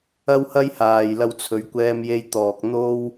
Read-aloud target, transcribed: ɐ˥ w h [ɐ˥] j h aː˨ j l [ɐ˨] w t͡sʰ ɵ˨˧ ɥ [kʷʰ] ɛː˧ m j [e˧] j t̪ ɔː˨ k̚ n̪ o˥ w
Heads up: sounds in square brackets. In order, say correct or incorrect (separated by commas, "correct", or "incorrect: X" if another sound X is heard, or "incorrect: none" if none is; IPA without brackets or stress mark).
correct, incorrect: ɐ˧, incorrect: kʷ, correct